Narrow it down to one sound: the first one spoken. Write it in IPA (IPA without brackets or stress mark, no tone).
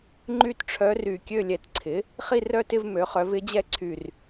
ŋ͡ǃ